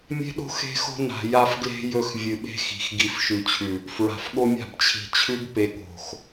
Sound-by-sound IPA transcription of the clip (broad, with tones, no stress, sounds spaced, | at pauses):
mʲ e̤˦ ɗ o̤˦ x e̤˦ x o̤˦ n a̤˨ j a˦ f ɡ l e̤˦ j ɵ˦˨ x vʲ ɨ˨ ɓ e̤˦ x i̤˨ x ɡ i˨ f ʃ ʉ˨ t͡ɕʰ ʉ˨ | f ɹ a̤˨ f ɠ o˦ mʲ a̤˦˨ b t͡ɕʰ i̤˨ t͡ɕʰ ʉ˦ b p e˨ ɠ o̤˨ x